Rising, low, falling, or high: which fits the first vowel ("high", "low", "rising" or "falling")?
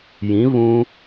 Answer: rising